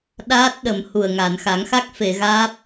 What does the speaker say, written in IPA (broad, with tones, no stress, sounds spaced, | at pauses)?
ɗ aː˦˥ t̚ ɗ ə˨˩˨ m h u˨˩ ə̯ ŋ a˨˩˨ n x a˨˩˦ ŋ x a˦˥ k̚ f e˨˩˨ ɣ aː˦˥ p̚